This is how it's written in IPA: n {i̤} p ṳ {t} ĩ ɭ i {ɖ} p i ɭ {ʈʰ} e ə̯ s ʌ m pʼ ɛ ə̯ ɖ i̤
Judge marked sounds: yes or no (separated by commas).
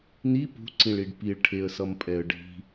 no, no, yes, yes